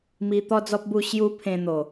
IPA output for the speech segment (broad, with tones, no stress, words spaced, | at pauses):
mi˧t̪ɔ˦d͡zɔ˦p̚bu˥˧ ɕju˦ pʰẽ˧ n̪o˨˩